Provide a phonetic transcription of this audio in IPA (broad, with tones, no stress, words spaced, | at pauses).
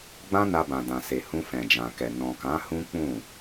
ɡ͡bã˦na˧bã˨ dã˨se˨hũ˧ fɛ̃˨d͡ʒã˨kɛ˨ nɔ̃˨kã˨˦ hũ˦k͡pũ˦˨